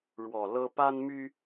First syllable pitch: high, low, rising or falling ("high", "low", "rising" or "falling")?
low